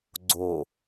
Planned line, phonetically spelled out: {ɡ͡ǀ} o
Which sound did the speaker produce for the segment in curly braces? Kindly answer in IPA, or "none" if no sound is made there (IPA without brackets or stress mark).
ɡ͡ǀ